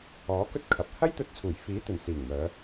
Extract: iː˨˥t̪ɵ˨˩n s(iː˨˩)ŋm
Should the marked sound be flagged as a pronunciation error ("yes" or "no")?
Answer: no